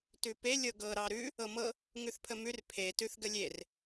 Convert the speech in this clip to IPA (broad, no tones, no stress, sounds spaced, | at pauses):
t ʉ p e lʲ ɤ ɡ ɤ ɾ ɑ ɾ ʉ | ɤ m ɤ | ŋ ʉ θ pʰ ə m ʉ r pʰ e t ʉ θ ɡ ə lʲ e r